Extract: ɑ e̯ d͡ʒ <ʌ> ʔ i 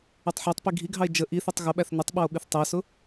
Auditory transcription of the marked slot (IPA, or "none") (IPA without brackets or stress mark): ə